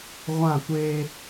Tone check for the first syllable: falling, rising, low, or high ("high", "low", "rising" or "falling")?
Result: falling